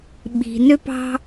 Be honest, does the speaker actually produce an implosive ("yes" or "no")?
yes